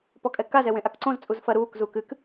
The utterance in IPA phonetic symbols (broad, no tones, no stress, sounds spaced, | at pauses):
p ɔ kʼ ɛ k a z ɛ w ẽ ʔ a k ǀ õ z t͡sʼ u z f ɐ ɾ uː k z uː k ɨ k